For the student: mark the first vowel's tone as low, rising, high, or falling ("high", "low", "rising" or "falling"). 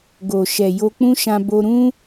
low